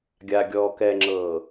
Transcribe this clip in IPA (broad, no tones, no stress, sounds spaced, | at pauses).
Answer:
ɡʲ a ɡʲ ɔː k ɛ ŋ͡ǁ ɤː